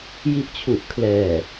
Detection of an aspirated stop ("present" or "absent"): present